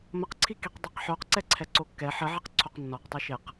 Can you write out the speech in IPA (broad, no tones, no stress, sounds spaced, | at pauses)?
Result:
m ə q ǀʰ i k i q dˤ ɛ q ħ o q ǀ ɛ ǀʰ ɛ ǀ o kː ɛ ħ ə ʕ e q ǀʰ o q nː ɔ q tˤ i ʃ e q